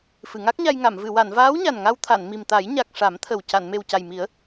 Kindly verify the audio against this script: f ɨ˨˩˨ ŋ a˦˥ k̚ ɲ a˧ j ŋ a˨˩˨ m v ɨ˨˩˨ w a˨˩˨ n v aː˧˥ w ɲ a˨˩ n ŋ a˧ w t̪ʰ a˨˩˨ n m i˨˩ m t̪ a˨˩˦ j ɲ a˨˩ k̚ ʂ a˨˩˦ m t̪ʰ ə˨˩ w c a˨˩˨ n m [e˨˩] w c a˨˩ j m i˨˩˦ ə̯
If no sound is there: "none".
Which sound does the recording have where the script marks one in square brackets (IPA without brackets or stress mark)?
e˨˩